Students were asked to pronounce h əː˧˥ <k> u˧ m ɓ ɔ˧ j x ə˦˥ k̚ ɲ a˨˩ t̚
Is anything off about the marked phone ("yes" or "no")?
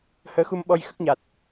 yes